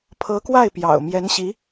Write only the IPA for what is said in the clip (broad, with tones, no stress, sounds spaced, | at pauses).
pʰ ɤ˧˥ k w a˥˩ ɪ̯ p j ɑ̰˨˩ ʊ̯ m j ɛ˧˥ n ɕ i˧˥